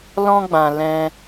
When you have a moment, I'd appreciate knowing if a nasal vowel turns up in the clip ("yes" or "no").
yes